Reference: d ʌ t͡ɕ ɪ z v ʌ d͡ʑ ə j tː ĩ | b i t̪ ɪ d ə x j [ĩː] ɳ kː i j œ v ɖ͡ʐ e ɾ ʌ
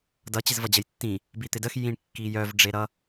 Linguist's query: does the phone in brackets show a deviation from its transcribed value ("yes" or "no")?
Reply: yes